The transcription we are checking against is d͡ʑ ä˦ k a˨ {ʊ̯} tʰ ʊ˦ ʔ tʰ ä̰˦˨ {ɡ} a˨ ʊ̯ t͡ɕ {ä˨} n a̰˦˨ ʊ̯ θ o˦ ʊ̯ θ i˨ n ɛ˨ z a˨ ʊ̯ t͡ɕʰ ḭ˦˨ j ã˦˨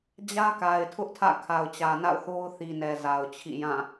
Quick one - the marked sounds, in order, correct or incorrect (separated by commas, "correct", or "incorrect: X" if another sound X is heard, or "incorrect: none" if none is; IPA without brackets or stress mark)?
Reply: incorrect: ɪ̯, incorrect: kʰ, correct